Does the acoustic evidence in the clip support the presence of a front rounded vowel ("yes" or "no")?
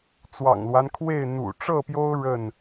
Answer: no